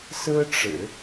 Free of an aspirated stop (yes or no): yes